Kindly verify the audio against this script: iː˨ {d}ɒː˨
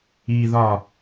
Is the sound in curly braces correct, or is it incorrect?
incorrect